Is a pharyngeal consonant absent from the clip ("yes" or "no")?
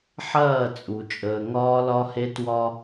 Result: no